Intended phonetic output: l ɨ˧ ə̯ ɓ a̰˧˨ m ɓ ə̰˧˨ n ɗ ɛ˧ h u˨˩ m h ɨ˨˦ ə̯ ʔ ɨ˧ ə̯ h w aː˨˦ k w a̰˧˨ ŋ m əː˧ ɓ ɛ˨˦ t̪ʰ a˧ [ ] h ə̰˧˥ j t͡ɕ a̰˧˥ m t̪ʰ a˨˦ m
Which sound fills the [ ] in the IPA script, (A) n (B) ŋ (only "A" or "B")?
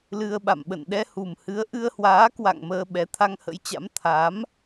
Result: B